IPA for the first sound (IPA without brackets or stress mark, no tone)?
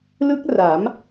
l